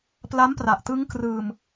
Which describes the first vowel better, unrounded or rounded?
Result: unrounded